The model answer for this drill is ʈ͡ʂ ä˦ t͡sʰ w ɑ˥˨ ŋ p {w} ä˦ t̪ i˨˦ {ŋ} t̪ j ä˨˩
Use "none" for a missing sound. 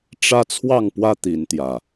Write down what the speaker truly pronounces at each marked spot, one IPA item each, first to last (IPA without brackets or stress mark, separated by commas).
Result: w, n